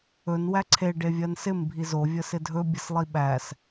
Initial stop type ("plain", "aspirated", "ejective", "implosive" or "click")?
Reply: click